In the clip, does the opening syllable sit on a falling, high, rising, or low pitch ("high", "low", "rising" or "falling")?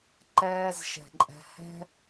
low